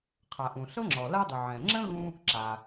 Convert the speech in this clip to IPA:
qʰa˩ʔũ˩ ɬɤ˥ŋ͡ǁɔ˩ la˥dˤu˩ ʕɛ̃˩ŋ͡ǁə̃˥ ɣũ˥ | ǁa˩

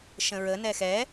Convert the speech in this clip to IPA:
ʃə̃ɹənɛ xɛ

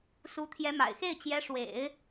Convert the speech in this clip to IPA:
su˧˥ t̪ʰjɛ˧˥ma̰˨˩ɪ̯xe˥˩ɪ̯ t͡ɕjɛ˧˥ ʂwḛ˨˩˦ɪ̯

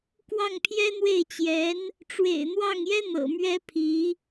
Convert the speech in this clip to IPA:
kwɑ˥˩ŋpʰjɛ˥n̪we˥˩ɪ̯t͡ɕjɛ˧˥n | ʈ͡ʂwḛ˨˩ɪ̯n̪wɑ˥˩ŋjɛ˥ n̪ɤ̰˨˩mɥɛ˥ pʰi˧˥

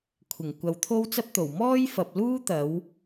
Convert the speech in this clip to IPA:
kʷʰɪ˨˩ŋ kʷɐ˨wt̪ʰo˥wt͡sɐ˥p̚t̪o˨˩w mɔː˥jfɐ˨p̚luː˥ t̪ɐ˨˥w

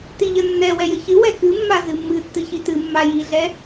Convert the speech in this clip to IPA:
tiʎənːɛ wɛjəçɨ wɛkɨmːa zɨmːɨ tːɨçitɨ mːajiɮɛ

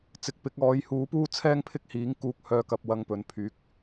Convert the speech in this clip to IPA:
t͡sɪ˨k̚pɪ˨˥k̚ɔː˨˥j huː˨˥puː˥t͡sʰɛː˥ŋpʰɪ˥k̚ hiː˨˥ŋ kuː˧k̚hœː˧ kɐ˧p̚ wɐ˧ŋpɵ˨npʰyː˨˥k̚

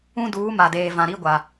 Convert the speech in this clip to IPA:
ũ˦duː˨˦ ma˨deː˨vã˨ ɾi˦ɡʷa˨

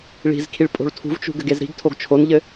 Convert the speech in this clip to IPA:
ɭi̤zkʰiɭ pʼo̤ɭtʰṳvt͡ʃṳ ɡɘɡezɾi̤ɡtʰoɡ t͡ʃʰonʎɘ

